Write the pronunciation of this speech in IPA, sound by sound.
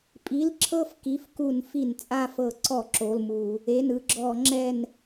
pʼ i˩˧˩ l ǁʰ ɤ˦˨ f k i˩˧˩ f k u˧˩˧ n f i˧˩˧ n t͡sʼ a˦˨ f ɤ˧˩˧ ǀ ɔ˧˩˧ ǁ o˩˧˩ l m u˧˩˧ | e˩˧˩ n ɯ˦˨ ɡ͡ǁ ɔ˧˩˧ ŋ͡ǁ ɛ˦˨ n

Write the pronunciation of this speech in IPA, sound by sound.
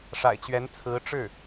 ʂ a̰˨˩ ɪ̯ t͡ɕ ɥ ɛ˧˥ n t͡sʰ ɹ̩˧˥ ʈ͡ʂ ɻ̩˥˩

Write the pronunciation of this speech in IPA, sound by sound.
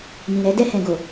m ĩ˨ ɾ ɛ˨˦ d ɛ˦˨ h ɛ̃˨ ɡ o˨

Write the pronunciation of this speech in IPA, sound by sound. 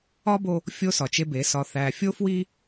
ɒ˦ b o˦ | fʲ o˦ s ɒ˨ t͡ʃ e˦ b e˨˦ s ɒ˨ θ æ˨ fʲ o˦ f w i˦

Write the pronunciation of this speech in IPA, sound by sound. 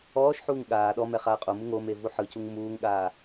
ɔː ʃ ħ uː ŋ ɠ aː ɗ ɔ m ɛ χ aː qʼ o m ɯ ŋ o m e v u ħ ɯ c u ŋ m uː ŋ ɠ aː

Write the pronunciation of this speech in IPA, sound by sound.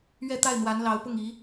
ɥ ɛ˥˧ t̪ a˥˩ ɪ̯ n̪ w a˧˥ n l ɑ˧˥ ʊ̯ p ʊ˥˩ ŋ i˧˥

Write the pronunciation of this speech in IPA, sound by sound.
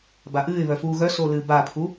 b a ʔ ɨː ɪ̯ β œ f uː ɣ œ s o l ɨː b a pʰ u

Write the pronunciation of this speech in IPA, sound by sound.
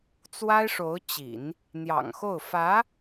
t͡s w a˥ ɪ̯ ʂ o˧˥ ʊ̯ t͡ɕ ḭ˨˩˦ n | n̪ j ɑ̰˨˩ ŋ x o˥˩ ʊ̯ f ä˧˥

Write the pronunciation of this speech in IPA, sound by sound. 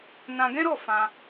n ã˧ ɡ ɛ̃˦ ɾ ɔ˦˨ f ã˧

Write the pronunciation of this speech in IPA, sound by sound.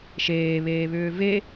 ʃ eː β eː β ʏː v e

